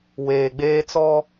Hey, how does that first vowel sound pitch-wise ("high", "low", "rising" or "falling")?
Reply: low